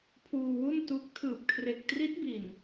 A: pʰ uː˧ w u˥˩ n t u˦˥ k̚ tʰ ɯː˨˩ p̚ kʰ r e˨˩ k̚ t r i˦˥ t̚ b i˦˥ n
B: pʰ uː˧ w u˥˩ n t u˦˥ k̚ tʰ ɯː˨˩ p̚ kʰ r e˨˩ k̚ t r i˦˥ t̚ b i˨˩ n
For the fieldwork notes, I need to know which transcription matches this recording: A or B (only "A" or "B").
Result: B